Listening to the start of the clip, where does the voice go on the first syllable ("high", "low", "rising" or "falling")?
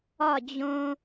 falling